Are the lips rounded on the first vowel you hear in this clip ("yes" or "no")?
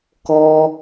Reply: yes